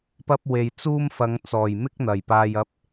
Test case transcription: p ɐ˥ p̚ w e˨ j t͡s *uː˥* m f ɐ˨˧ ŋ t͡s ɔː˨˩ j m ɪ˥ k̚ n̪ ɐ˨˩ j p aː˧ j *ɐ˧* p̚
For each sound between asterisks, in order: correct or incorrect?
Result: correct, correct

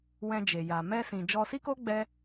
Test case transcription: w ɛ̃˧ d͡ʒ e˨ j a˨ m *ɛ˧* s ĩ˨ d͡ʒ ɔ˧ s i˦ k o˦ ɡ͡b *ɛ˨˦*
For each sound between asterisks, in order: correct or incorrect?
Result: correct, incorrect: ɛ˦

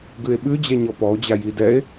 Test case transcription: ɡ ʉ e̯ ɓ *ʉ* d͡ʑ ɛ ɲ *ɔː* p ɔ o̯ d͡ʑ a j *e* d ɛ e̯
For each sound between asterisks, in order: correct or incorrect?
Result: correct, incorrect: ɔ, incorrect: i

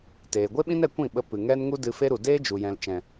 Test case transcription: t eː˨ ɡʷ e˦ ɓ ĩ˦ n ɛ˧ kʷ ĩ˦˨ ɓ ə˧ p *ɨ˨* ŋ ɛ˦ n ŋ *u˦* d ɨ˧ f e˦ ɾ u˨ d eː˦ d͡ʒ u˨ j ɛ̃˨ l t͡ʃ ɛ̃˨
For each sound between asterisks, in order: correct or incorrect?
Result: correct, correct

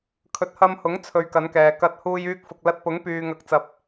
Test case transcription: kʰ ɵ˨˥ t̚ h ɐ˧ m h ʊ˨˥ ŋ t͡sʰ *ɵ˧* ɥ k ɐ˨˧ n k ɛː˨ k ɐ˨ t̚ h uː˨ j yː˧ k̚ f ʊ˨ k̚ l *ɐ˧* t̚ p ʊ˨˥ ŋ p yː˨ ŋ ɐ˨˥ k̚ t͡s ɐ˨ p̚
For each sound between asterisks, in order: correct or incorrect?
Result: correct, correct

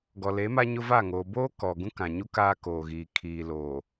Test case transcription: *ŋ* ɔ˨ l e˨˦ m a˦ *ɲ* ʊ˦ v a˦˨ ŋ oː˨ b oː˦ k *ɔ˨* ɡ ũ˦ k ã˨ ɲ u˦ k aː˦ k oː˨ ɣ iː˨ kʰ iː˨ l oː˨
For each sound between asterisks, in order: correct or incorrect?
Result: incorrect: ɡ, correct, correct

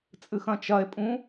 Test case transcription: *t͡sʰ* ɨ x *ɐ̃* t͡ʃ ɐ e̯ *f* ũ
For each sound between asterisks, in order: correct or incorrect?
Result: incorrect: t͡sʼ, correct, incorrect: pʼ

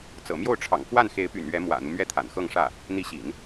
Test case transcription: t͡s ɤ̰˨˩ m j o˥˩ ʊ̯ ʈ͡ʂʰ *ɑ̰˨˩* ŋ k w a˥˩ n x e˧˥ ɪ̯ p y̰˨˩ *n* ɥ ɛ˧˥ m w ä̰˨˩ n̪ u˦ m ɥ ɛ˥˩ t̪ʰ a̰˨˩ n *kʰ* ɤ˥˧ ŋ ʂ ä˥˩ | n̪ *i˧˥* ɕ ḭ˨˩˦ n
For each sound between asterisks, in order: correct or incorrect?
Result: correct, correct, incorrect: x, correct

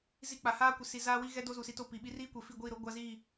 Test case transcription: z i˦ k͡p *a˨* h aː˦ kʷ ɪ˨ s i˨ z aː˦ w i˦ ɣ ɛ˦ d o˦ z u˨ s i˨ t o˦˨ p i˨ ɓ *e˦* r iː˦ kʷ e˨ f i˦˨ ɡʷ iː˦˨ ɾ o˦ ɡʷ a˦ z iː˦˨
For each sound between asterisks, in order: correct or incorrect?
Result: correct, incorrect: i˦

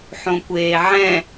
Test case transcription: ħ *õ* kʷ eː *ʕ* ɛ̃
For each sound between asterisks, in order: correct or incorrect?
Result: correct, correct

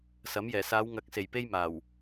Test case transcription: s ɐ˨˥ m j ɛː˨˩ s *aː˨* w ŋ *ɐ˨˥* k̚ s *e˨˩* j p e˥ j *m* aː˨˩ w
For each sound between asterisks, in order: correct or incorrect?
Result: incorrect: aː˨˧, correct, correct, correct

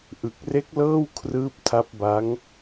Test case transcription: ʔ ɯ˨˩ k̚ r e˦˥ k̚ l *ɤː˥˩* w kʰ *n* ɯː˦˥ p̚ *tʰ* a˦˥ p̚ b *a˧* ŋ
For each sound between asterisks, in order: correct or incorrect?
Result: correct, incorrect: r, correct, incorrect: a˦˥

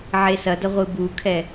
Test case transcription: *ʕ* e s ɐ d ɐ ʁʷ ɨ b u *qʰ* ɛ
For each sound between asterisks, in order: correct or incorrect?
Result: correct, incorrect: kʰ

